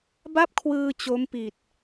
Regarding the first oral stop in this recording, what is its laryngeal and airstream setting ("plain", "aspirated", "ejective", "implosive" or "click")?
plain